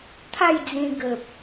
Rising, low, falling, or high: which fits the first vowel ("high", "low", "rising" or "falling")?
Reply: falling